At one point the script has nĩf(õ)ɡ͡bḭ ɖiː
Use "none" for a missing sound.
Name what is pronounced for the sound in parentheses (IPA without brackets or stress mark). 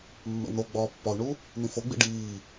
o